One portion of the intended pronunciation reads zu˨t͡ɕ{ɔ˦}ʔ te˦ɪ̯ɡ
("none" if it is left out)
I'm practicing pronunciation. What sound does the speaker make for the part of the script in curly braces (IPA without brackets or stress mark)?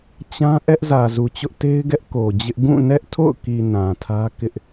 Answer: ʊ˦